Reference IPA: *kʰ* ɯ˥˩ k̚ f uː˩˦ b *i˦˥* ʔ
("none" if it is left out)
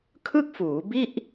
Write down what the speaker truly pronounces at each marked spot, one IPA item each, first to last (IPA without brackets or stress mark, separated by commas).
kʰ, i˥˩